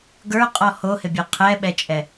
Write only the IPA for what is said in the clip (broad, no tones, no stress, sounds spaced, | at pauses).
ɡ ə˞ qʼ ɔ h o h ɪ bʲ ɤ qʰ ɛ ɓ ɛ t͡ʃʼ ɛ